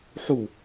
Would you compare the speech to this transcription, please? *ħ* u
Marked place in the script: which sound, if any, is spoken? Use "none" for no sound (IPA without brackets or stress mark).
ħ